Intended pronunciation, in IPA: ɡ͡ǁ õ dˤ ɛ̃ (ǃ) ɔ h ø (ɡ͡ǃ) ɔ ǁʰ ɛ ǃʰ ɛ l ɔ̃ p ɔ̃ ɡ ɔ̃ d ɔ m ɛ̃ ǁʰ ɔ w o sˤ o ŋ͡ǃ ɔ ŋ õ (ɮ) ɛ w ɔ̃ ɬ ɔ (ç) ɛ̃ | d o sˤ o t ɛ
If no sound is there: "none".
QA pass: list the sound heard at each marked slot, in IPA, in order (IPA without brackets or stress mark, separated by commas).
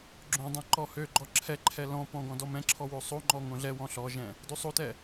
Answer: ǃ, ɡ͡ǃ, ɮ, ʒ